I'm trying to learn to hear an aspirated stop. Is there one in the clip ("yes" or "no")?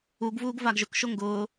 no